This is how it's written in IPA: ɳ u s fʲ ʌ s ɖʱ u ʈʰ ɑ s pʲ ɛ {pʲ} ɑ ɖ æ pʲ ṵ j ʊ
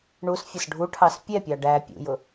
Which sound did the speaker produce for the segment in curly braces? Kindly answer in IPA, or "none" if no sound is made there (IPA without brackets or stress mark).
pʲ